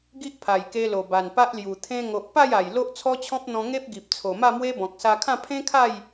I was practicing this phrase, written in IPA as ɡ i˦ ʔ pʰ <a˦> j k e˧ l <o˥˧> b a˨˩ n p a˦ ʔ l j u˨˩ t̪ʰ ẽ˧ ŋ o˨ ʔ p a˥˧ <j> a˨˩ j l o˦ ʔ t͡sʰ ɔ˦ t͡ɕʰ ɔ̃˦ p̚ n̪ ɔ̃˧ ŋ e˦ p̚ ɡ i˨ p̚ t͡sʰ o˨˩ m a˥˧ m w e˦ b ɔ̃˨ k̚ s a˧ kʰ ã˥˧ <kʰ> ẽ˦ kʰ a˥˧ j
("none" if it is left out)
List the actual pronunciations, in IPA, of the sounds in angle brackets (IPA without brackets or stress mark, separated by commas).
a˨˩, o˨˩, j, pʰ